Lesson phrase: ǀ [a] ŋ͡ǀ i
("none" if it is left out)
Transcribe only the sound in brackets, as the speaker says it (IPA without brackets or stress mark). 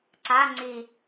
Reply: a